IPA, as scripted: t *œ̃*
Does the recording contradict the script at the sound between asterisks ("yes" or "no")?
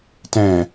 yes